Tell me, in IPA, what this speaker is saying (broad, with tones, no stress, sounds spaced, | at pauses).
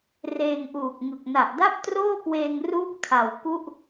r eː˧ ŋ ʔ uː˨˩ k̚ ŋ ɯ˨˩ k̚ n a˨˩ ʔ d a˥˩ p̚ t r oː˥˩ k w eː˧ ŋ r uː˥˩ p̚ kʰ a˨˩ w k u˥˩ ʔ